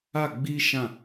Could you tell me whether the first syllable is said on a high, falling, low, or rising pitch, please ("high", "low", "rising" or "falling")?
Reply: falling